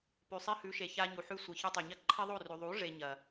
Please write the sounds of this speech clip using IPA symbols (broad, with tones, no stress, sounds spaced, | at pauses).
p ʉ˨ sˤ i˧ h ʉ˨˦ ʃ e˨ ç a˧ ɲ u˨ ħ ʉ˧ sʷ ɨ˨ ç ɨ˧ tˤ ɵ˨ ɲ ɐ˦ ǃʰ i˦ ðˤ o˦˨ r ʉ˨ ðˤ u˨˦ ʐ e˦ ɲ ɐ˨